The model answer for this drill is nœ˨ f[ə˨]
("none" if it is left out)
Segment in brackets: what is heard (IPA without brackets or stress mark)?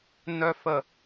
ə˨